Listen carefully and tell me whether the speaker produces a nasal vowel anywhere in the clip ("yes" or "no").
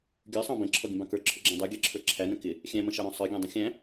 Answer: yes